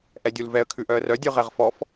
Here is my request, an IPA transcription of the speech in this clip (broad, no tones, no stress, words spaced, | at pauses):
ʔɛdʲulvɛə̯ kʰʉʔœə̯rœ dʲʉʁɛʁfɔf